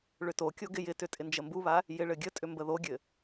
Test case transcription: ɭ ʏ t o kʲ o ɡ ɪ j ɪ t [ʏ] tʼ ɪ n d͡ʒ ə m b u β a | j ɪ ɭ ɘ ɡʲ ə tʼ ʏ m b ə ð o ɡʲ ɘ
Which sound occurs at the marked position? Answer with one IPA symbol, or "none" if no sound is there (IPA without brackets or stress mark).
ʏ